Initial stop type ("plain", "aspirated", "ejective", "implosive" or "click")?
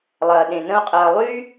implosive